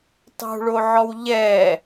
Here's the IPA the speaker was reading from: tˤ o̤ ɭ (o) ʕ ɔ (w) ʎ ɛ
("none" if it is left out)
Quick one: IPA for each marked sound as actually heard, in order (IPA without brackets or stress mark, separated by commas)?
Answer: o, w